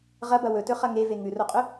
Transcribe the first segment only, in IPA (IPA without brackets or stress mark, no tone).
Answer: ʁ